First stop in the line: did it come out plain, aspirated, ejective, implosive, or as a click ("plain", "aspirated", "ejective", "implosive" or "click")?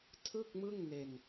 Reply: aspirated